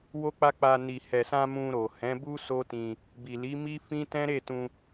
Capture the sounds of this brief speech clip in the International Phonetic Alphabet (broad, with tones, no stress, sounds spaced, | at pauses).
w o˦ k͡p a˦ k͡p a˧ n i˨ h ɛ˨ s ã˧ m ũ˧ ɾ o˨ h ɛ̃˨˦ b u˦ s o˦ t ĩ˧ | b i˨ l i˨˦ m i˦ f ĩ˦ t ɛ̃˦ ɾ e˦˨ t ũ˧